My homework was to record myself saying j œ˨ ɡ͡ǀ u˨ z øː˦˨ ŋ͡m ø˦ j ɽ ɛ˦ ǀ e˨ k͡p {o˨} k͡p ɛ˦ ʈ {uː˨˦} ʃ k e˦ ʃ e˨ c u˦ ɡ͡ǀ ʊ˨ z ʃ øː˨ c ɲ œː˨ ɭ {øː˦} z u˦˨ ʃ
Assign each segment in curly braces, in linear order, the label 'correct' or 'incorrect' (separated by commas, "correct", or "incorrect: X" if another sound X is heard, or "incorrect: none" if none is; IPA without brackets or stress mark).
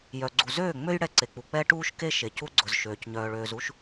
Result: incorrect: u˨, incorrect: uː˦, incorrect: øː˨